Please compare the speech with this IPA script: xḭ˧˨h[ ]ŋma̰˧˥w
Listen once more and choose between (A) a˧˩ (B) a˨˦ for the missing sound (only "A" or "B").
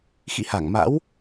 A